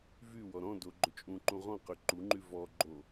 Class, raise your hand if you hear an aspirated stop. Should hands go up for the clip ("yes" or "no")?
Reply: no